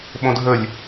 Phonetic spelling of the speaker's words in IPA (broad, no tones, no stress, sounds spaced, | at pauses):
ɓ õ dʱ ə lʲ